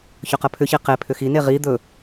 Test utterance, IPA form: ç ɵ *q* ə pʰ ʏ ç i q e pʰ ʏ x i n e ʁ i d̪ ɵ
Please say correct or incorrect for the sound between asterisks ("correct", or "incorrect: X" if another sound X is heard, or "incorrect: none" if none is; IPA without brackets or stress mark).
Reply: correct